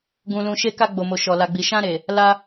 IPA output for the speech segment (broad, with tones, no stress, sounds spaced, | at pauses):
ɡ ũ˧ l ũ˧ ʃ e˧ k a˧ ɡ͡b o˨ m o˨ ʃ ɔ˨ l a˨ ɡ͡b i˨ ʃ ã˧ ɾ e˨ | l a˧